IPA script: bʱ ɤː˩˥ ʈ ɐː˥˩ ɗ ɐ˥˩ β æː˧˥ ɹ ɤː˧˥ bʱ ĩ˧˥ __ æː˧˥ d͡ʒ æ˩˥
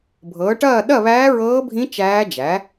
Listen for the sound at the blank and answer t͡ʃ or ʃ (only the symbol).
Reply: t͡ʃ